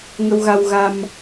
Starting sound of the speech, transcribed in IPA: ŋ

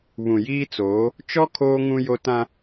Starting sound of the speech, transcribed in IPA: β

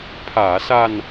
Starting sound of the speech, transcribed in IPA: pʰ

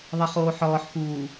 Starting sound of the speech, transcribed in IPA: ðˤ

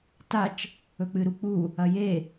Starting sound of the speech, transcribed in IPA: t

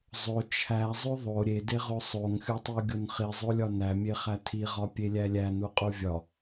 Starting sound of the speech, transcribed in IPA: zˤ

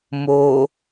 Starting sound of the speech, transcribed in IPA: m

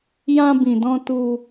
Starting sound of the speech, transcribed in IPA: j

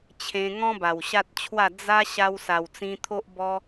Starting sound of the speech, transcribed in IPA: t͡ɕʰ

